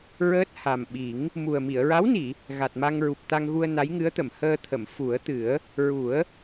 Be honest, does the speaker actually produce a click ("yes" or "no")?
no